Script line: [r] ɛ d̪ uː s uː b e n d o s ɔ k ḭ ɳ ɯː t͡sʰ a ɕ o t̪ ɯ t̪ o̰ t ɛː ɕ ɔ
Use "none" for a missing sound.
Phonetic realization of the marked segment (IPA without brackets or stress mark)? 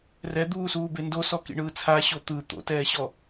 r